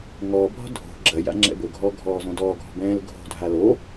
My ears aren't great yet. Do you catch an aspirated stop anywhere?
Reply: no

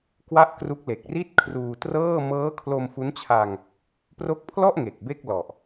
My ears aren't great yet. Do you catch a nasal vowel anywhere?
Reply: no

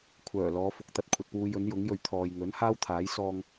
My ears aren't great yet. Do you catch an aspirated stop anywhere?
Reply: yes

